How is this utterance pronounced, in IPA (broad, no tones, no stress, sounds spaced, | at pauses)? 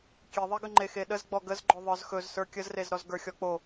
kʲ e ðˤ e ɡ ə ŋ͡ǃ e x e ɗ ə z ɡ͡b ɔ ɡ ə z ɡ͡ǃ ɵ ðˤ ə˞ z x ɵ z s ə˞ kʲ ə z r e z ɾ ɔ z ɡ ə˞ xʲ ɔ k͡p o